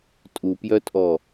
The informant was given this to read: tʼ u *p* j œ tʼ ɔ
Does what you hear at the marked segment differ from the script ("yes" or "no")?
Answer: no